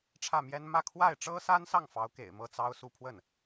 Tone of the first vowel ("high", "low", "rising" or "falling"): falling